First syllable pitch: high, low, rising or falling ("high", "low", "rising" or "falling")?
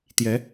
rising